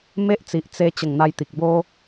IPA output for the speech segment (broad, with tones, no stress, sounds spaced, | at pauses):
m e˦ ʔ t͡s i˨ ʔ t͡s e˧ t͡ɕ ə˨˩ ŋ n̪ a˧ j t̪ i˨ k̚ b o˧